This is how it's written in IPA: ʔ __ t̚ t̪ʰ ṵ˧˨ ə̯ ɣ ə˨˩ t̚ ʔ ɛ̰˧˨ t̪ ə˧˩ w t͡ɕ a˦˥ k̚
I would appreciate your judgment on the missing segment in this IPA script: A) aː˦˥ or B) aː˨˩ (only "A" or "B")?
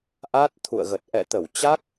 A